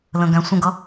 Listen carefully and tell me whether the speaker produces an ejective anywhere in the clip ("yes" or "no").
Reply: no